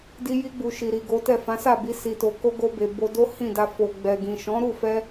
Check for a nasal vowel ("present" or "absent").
present